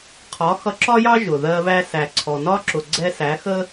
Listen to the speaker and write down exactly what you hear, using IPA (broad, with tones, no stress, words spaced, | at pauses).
qʰɒ˨˦ xʌ˧ǁɒ˦jɑ˦ʒʊ˨ ðɜ˦βæ˦ sæ˨ǀʰɔ˨nɒ˦ǁʊ˨ ɡ͡ǀɛ˧sæ˨˦xə˦